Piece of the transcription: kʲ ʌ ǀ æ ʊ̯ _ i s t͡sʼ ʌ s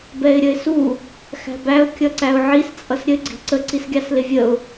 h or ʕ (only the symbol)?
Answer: ʕ